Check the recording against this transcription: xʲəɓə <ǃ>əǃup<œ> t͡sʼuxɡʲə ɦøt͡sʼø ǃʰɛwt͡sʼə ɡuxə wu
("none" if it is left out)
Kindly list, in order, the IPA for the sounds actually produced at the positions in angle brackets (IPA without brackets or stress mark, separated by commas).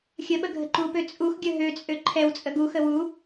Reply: ɡʱ, ø